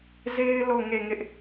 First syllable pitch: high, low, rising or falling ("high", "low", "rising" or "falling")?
high